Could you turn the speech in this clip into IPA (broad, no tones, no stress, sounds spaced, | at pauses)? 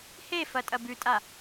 h e f ɐ tʼ ɐ b ʉ tʼ a